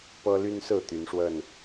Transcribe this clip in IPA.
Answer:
p ɤ˦ l y˦ n s ɹ̩˥˨ t̪ y˨˦ n ʂ w ə˥˨ n

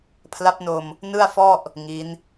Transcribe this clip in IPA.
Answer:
pʰ l a˦˥ p̚ n o˧ m | n ɯ˥˩ a̯ f ɔ˥˩ ʔ | ŋ i˦˥ n

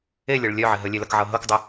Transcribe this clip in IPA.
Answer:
e lʲ ɤ ɭ lʲ œ ʕ ɪ ɦ ə lʲ e l ɐ k ʕ ɤ ɦ ɤ k dˤ ɪ

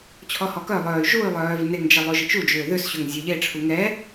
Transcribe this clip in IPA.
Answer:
t͡ɕʰ ɔ h ɔ k œ lˠ œː y̯ ʒ u y̯ lˠ œː v n e ŋ d͡ʒ ɛ lˠ o ʒ ɪ t͡ʃ u d͡ʒ ʏː ð ʏ s ɕ ʏ ŋ zʲ œ ʎ e ʈ͡ʂʰ u ŋ ɛ

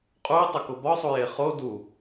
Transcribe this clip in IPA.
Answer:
qʼ u ɪ̯ tˤ o k o b ɒ sˤ u j e χ o d u

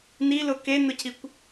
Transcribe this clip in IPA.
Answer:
n i l ʊ k e n ʊ cʰ i kʷ

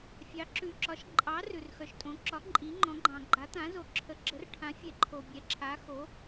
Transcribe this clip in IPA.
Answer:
fʲ ɑ˨˥ ǁ ʉ˨ ǁ ɒ˨˥ ʃ ǃʼ ɑ˨˥ r ʉ˨ r x œ˨ ʃ tʼ õ˨˥ ǁ ɒ˨˥ ǃʼ i˨˥ ŋ͡ǃ ɔ̃˨˥ ɡ͡ǃ ɑ̃˨ ɡ͡ǃ a˨˥ t̪ ã˨˥ z o˨ ǁʰ ə˨˥ ɡ͡ǁ ə˨˥ r ʈʰ ã˨˥ fʲ ɛ˨ ǃʰ o˨ bʲ ɛ˨˥ ǁʰ a˨˥ x o˨˥

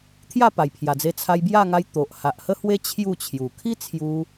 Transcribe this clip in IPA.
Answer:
t̪ʰ j a˥˧ p a˨˩ j pʰ j a˨˩ d͡z e˧ t͡sʰ a˧ j b j a˥˧ ŋ a˧ j t̪ o˨ ʔ h a˨ ʔ h ə˦ h w e˦ t͡ɕʰ j u˥˧ t͡ɕʰ j u˨˩ kʰ i˦ t͡sʰ j u˧

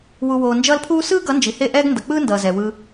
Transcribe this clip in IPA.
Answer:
w u˨ w oː˨ n d͡ʒ ʌː˧ l pʰ uː˦ s ɯː˦ ɡ ʌ˨˦ n d͡ʒ i˨ h e˦˨ ʔ ɛː˦ ɡ n d ʌ˨ k͡p ɯː˦ n d ʌː˨ z ɛː˨ w ɯː˧

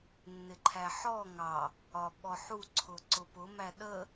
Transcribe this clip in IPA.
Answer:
nː ɪ ǃʰ æ ħ ɔ ŋ ɑ | ɒ ɓ ɔ ħ u ǀʰ ʊ ǀ ʊ p ʊ m æ ɗ ə

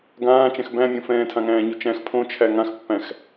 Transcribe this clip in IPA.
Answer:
ɡ ãː t͡ʃ ɛ̃ x b æ̃ mʲ õ f ɛ̃ː tʰ ã ŋ æ̃ː ɲ u t͡ʃ æ̃ x pʰ õ t͡ʃʰ æ ŋ ã x pː æ̃ x

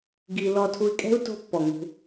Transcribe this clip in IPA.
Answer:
ɡ i˧ l ɔ˧ tʰ u˧ i̯ kʼ ɛ̤˦ u̯ t o̤˧ pː ɔ˨ ŋ ṳ˧

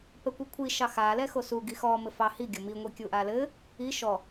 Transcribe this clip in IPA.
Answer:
p ɛ kʷ i kʷʰ i ʃ ɑ x a l ɛ x o s u ɡ i x ɔ m ɘ f ɑ h i ɡʲ o m i ŋʷ i kʲ u ʔ a l ɘ | i ʃ ɔ

